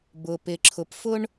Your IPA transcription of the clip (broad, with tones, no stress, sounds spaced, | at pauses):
b ʊ˩ p ɪ˩ ǁʰ ʊ˩ p f ʊ˥ ɳ